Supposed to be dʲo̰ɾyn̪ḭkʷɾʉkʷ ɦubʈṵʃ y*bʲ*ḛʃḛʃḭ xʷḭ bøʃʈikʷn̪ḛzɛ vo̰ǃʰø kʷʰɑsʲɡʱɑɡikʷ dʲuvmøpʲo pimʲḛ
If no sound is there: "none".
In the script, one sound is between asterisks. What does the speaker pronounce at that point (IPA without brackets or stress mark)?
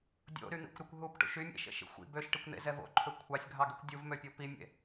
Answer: mʲ